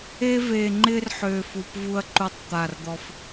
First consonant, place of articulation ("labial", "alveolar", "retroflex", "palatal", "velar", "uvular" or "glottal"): labial